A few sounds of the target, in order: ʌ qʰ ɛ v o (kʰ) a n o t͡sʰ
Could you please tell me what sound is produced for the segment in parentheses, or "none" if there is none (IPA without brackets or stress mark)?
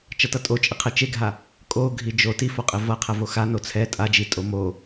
x